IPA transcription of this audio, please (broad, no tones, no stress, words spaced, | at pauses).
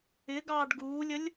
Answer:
ɪɡɑːɖ ɡuːlʲəlʲ